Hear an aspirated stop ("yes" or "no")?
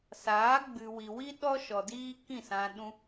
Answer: no